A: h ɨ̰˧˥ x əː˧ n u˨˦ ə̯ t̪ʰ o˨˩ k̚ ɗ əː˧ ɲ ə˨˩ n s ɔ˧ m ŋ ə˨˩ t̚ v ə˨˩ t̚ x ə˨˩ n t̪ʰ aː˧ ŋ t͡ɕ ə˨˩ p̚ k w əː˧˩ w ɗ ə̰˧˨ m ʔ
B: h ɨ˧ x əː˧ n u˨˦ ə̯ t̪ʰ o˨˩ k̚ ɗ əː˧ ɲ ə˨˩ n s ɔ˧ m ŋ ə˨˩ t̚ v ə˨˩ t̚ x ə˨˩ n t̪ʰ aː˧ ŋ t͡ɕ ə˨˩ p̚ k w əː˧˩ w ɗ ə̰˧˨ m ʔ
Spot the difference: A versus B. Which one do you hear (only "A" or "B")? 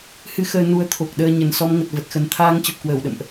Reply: B